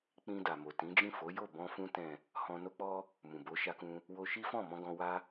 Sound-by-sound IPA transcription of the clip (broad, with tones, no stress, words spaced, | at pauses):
k͡pĩ˧da˨mo˨ tĩ˨˦d͡ʒĩ˦˨ fo˨˦jo˦˨ bɔ̃˧fũ˧ tɛ̃˨ | hɔ̃˧no˦k͡pɔ˦ | mũ˨bo˨˦ʃa˧kũ˧ | wo˧ʃi˦fɔ̃˦˨mɔ̃˧ ɡɔ̃˧ wa˧